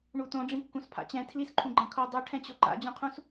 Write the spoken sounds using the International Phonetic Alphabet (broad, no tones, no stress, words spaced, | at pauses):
ɳutõɖ͡ʐĩkːũs pʰa̰t͡ɕɛ̃ tʰlisǃʰũɡ͡ǃã kʰo dˤuʈʰɛ̃t͡ɕo ǃa̰d͡ʑõqʰũs